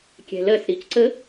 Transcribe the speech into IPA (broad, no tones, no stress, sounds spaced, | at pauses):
kʲ ɛ̤ l ɜ s ɾ i c ǀ ə